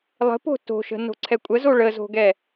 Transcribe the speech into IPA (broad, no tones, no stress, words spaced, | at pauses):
lˠə̤po̤ to̤ʃə̤ no̤ǀʰɛkʷʼəzo ɭəzo̤ɡɛ